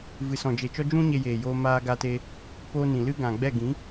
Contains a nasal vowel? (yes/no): yes